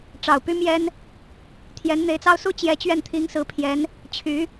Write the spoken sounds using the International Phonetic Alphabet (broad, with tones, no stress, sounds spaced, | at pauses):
ʈ͡ʂ ɑ˨˩ ʊ̯ p y˥ m j ɛ˥ n | t̪ʰ j ɛ˧˥ n n̪ e˧˥ ɪ̯ t͡s ɑ˥ ʊ̯ s u˥ t͡ɕ j ɛ˧˥ t͡ɕ ɥ ɛ˥˩ n t̪ʰ i˧˥ ŋ s ɹ̩˧˥ pʰ j ɛ˧˥ n | t͡ɕʰ y˧˥